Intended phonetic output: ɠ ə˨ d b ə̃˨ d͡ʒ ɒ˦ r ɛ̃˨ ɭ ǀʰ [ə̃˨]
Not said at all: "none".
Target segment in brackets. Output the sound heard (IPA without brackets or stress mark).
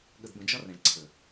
ə˨